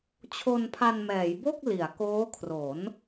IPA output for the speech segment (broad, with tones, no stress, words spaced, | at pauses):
t͡ɕʰo˧npʰa˧nmɛː˩˦jbo˥˩k̚ li˩˦a̯koː˦˥kʰro˩˦n